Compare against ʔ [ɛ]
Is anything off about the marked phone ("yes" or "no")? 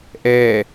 no